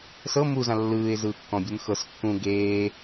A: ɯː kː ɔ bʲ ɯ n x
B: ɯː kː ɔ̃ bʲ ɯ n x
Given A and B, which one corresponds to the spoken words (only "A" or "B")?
B